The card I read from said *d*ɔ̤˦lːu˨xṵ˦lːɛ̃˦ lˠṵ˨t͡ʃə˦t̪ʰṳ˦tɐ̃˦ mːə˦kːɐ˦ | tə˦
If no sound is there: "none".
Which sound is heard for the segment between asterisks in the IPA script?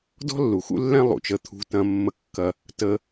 d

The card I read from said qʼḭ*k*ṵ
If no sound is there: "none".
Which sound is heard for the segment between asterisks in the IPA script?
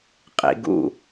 ɡ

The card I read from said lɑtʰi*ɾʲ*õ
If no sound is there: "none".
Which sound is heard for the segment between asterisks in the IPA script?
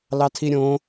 ɾʲ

